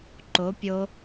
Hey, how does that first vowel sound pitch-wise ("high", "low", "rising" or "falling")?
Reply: rising